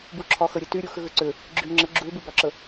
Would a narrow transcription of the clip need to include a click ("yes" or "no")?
yes